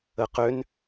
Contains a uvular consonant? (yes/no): yes